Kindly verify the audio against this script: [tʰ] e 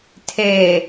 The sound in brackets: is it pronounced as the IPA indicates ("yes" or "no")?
yes